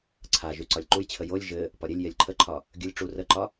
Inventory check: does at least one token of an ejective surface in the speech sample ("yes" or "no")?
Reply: no